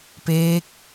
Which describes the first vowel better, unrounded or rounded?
unrounded